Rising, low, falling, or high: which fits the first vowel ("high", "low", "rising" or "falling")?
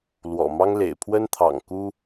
low